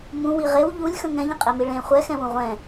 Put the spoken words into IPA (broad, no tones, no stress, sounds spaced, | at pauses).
m ũ w i ʁ e w ʎ u lʲ x ə̃ ŋ ɛ̃ ʎ ə̃ qʼ e m i ɭ ẽ χʷ ɛ x ɛ̃ w ũ ʁʷ ɛ̃